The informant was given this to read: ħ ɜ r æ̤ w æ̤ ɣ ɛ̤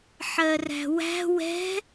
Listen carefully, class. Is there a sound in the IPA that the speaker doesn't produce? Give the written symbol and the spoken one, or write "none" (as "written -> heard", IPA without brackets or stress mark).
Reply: ɣ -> w